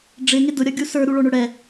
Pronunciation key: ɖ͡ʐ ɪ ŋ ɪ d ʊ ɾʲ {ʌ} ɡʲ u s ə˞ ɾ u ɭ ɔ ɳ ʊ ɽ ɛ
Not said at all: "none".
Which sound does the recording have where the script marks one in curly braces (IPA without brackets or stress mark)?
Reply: ʌ